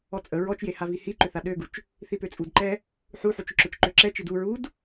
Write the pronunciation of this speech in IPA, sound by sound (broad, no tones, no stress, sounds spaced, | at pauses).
ɔ t͡sʼ ə ɹ ɔ t͡ʃ j e h a v i h i ǃ ʏ θ a ɗ ø ɡ u t͡ʃ | θ i p ø t͡sʼ u d ǃ ɛ | ħ u ħ u t͡ʃ ʏ ǁ ø t͡ʃ ǃ ø ǁ ɛ t͡ʃ i d u ɹ u d